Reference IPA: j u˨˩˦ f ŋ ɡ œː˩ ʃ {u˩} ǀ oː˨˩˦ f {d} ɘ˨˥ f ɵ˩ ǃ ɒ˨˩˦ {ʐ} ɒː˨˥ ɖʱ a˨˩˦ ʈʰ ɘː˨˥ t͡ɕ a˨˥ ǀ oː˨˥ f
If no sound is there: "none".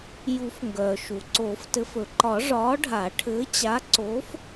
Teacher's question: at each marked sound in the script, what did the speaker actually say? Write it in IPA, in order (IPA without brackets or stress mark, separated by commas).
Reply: u˩, t, ʐ